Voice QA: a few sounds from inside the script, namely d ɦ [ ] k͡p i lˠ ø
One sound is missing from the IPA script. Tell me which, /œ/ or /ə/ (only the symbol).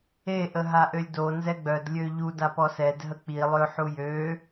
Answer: ə